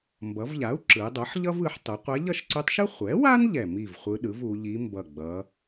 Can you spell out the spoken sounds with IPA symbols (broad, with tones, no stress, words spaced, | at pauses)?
mbʌ˩˧vʎa˩˥u̯ ǁɯ˩˧dˤʌ˩˥ħʎʌ˥vɯ˩˧ħ tˤu˩˧qʷɛ˧˥ ʎʌ˥˨ʃǀu˧˥tˤʃɯ˥ χʷɛ˩˥wa˥n ʎɛ˧˩mi˥˨vχʷɯ˧˥ ɗɯ˩˥v u˩˧ʎi˧˥mbʌ˧˩ ɡ͡bʌ˩˧